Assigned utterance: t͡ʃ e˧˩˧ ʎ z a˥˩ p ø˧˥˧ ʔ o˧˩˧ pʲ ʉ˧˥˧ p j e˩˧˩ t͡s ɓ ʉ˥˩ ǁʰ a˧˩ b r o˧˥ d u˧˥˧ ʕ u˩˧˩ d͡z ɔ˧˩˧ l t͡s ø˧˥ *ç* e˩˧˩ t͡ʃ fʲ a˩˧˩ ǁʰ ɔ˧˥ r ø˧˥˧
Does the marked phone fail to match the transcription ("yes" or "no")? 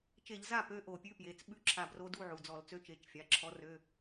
yes